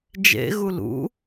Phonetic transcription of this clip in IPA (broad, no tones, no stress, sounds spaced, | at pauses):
d͡ʒ ḛ ɣ u l ṵ